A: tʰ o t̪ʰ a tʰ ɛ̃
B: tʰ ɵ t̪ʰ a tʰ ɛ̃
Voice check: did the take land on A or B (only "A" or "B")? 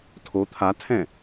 A